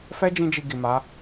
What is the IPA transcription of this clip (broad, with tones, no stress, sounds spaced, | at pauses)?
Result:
f ɛ˦ d͡ʒ ĩ˧ d͡ʒ i˨ ɡ i˨ m a˨˦